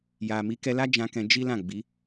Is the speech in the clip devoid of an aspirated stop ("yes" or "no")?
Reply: yes